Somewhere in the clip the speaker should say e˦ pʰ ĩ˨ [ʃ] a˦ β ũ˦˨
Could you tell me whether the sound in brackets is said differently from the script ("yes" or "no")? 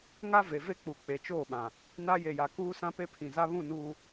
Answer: yes